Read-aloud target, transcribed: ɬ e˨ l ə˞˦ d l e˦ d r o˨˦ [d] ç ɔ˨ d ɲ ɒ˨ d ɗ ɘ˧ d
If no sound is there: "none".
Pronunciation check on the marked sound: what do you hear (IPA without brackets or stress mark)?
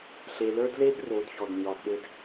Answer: d